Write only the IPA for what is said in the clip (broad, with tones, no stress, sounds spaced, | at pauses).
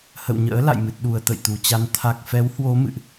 h ə̰˧˨ w ɲ ə̰ː˧˥ l a̰˧˨ j m ɨ˨˩ t̚ ɗ u˨˩ ə̯ t̪ ə̰˧˨ j t̪ u˨˩ t͡ɕ a˧ n t̪ʰ a˨˩ k̚ f ɛ˨˦ w h w o˨˦ m ɨ̰˧˨ ʔ